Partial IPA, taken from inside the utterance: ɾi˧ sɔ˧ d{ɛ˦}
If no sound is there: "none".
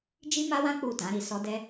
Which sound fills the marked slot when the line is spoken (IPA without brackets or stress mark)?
ɛ˦